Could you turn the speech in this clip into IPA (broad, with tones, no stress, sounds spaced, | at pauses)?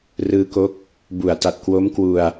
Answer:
r ɯː˧ k o˦˥ k̚ | b u˩˦ a̯ t a˨˩ t̚ k w o˦˥ m k w u˧ a̯